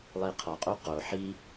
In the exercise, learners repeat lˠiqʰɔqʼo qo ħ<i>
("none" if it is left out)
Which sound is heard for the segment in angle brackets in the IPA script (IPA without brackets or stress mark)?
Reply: i